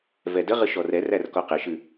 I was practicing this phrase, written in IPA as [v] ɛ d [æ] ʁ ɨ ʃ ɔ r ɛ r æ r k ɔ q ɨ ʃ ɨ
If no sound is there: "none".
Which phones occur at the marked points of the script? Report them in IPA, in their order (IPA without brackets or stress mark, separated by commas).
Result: v, ə